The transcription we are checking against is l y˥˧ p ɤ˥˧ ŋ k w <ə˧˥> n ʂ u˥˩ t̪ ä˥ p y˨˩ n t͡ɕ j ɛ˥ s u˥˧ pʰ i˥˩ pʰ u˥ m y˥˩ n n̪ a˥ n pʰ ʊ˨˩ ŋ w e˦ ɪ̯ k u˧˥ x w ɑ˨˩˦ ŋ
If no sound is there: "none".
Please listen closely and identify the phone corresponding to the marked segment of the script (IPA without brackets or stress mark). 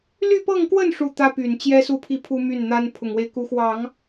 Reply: ə˥˧